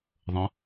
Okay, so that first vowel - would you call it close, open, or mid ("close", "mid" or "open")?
mid